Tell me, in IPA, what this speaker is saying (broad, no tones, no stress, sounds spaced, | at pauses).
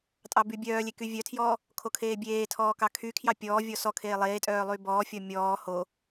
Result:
tʼ ɑ b y bʲ œː lʲ e k y vʲ œ tʰ j ɔː | kʰ o kʰ eː bʲ eː tʰ ɔː k ɑ kʰ y kʰ j ɑ pʲ ɔː vʲ ɔ s ɔ kʰ eː lˠ eː tʼ œː lˠ y b ɔː fʲ ɔ mʲ ɔː h o